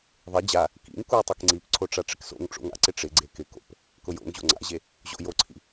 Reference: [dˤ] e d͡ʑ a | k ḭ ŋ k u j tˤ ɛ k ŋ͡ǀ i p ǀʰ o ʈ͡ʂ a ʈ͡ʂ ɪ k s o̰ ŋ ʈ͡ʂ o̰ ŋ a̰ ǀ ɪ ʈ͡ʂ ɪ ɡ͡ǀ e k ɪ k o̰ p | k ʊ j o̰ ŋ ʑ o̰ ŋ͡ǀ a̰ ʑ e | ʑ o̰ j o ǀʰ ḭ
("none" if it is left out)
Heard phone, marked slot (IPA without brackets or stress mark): ðˤ